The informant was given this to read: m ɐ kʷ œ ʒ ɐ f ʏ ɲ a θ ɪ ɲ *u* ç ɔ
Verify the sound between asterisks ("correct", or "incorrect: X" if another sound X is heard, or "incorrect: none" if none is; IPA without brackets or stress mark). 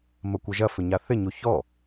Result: correct